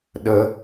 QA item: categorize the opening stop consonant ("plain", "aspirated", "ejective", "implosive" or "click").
implosive